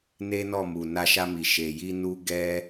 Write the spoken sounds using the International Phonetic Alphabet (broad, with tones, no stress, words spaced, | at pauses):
ne˦nɔ˦˨mu˨ na˧ʃa˧mi˨ ʃe˨ji˧ nu˦ ɡɛ˦